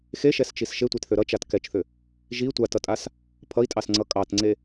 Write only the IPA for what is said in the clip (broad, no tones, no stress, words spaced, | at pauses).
xeʃɛst͡ʃis ʃetʷetθø ɾʌt͡ʃat kɛt͡ʃθʏ | ʒi tʷatʌtʼas | pʰʌi̯tʼɑsŋ͡ǀʌ kʼɑtŋ͡ǀe